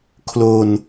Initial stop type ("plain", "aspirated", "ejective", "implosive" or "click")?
aspirated